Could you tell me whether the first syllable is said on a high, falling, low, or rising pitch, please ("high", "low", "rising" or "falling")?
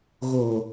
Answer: low